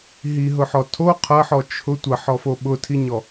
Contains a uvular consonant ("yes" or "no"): yes